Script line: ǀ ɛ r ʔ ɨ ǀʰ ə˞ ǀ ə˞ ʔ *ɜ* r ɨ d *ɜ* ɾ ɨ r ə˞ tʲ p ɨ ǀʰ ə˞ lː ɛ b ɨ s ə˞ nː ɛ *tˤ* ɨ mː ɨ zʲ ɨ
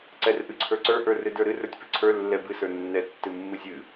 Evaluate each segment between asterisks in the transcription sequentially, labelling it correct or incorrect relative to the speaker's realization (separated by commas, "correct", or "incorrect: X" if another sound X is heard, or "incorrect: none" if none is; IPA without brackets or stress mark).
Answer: incorrect: ə˞, incorrect: ə˞, incorrect: tː